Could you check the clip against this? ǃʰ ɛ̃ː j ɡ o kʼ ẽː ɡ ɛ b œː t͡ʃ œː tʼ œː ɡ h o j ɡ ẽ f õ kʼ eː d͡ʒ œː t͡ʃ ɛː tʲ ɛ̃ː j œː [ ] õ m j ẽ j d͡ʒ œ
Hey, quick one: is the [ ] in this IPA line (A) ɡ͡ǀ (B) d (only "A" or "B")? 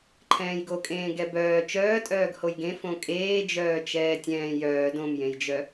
B